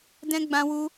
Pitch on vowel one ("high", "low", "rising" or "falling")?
high